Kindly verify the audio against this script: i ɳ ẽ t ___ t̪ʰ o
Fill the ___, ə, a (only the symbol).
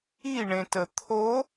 ə